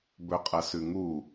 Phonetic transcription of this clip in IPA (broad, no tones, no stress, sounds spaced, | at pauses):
b ɵ qʼ ɐ s ʉ ŋ u